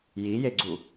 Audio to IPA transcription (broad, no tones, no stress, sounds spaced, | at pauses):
j i j e ɡ͡ǀ u